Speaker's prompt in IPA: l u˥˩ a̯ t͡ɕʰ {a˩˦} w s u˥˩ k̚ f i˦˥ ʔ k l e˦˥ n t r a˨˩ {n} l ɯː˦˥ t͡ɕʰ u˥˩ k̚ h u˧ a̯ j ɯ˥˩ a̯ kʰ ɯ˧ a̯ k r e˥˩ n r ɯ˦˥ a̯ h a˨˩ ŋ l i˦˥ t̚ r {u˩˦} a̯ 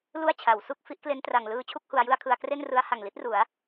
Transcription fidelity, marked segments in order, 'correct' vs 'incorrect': correct, incorrect, correct

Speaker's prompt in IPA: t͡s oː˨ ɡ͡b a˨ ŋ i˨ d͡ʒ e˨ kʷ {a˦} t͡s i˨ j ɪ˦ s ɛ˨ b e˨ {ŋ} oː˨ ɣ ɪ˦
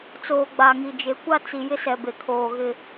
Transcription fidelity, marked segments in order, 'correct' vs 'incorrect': correct, incorrect

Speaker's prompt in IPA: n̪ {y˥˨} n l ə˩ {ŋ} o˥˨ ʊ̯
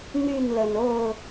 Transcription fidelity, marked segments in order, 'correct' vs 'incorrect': correct, incorrect

